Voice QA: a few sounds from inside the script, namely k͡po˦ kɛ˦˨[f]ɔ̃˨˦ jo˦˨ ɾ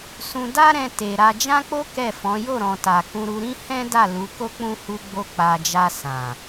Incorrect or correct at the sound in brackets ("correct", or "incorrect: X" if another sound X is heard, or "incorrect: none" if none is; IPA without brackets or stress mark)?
correct